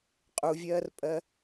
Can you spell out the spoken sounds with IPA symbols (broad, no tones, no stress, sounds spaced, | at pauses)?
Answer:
qʼ u vʲ ɜː r pʼ ɜ